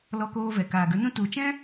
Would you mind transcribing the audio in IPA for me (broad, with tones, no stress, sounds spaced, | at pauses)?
l ɔ˧ k oː˧ v ɛ˨ k aː˨ ɡ ə˨˦ n ũ˦ t u˨ t͡ʃ ɛ̃˦